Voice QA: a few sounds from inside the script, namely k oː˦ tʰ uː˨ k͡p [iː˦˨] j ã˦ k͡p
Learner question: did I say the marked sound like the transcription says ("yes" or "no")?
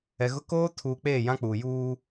no